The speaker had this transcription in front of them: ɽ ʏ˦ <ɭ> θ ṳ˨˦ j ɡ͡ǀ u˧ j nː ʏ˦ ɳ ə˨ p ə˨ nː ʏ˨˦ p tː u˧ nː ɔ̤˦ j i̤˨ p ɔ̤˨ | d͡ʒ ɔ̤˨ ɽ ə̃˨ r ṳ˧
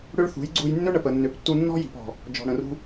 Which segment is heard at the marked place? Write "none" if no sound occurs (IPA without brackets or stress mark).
ɭ